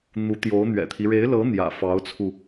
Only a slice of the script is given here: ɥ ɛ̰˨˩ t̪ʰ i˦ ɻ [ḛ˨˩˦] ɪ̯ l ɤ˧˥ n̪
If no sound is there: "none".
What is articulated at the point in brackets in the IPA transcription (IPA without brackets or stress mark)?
e˧˥